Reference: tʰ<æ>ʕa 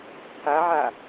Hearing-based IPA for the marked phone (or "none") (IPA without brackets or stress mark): a